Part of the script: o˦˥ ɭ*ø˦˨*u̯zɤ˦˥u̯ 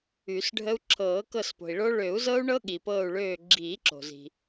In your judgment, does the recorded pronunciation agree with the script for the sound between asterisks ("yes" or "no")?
no